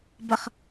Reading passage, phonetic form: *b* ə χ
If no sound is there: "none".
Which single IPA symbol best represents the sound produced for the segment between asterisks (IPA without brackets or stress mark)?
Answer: b